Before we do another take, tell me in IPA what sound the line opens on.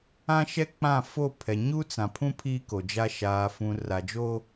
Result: ã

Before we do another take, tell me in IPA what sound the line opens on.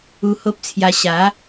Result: u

